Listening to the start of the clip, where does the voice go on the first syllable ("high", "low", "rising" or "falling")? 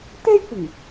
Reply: high